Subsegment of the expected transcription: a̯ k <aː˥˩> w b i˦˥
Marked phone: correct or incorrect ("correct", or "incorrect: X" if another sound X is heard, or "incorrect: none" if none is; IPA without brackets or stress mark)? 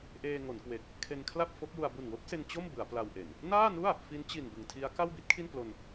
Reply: incorrect: a˥˩